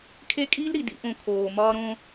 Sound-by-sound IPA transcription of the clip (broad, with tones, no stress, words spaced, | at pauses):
kʰe˦˨kʼiː˦lɾi˨ dḭ˦ʔõ˧kʰoː˨ mɒː˦ɾõː˦